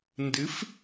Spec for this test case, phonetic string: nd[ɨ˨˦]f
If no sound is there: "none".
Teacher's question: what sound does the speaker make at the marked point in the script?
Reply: ɨ˨˦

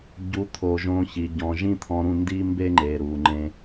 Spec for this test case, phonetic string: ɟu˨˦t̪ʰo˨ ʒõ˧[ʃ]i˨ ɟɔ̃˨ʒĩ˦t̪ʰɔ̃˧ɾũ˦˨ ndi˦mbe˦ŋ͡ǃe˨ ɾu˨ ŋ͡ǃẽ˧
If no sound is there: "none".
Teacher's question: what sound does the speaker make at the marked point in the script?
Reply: ç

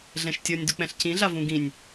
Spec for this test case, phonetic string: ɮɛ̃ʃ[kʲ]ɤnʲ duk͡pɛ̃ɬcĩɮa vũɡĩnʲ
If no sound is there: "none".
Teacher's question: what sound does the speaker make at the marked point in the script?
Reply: tʲ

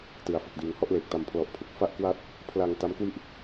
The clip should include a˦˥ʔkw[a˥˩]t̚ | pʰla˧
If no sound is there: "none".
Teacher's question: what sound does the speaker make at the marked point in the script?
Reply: a˦˥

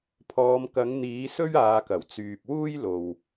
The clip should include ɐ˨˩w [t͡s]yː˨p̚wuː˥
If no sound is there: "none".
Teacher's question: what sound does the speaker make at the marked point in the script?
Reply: t͡s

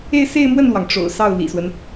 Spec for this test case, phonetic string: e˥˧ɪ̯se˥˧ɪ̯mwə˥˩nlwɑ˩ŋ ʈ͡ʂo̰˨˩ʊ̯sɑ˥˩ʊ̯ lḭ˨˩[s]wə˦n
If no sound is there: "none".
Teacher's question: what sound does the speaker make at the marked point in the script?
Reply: s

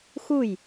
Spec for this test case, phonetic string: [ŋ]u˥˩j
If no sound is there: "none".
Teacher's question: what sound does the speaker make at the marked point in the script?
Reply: x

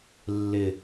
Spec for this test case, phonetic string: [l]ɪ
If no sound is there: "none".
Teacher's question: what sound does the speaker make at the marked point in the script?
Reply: lː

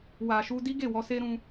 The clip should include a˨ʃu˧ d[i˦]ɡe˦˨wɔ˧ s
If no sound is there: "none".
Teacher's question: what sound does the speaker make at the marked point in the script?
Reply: i˦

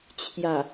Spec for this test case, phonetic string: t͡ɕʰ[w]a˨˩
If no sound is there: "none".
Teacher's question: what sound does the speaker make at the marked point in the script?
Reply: j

